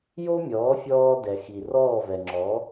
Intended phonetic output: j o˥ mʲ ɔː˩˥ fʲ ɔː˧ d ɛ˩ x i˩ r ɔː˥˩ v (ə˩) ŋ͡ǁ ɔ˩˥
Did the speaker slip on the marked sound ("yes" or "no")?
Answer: yes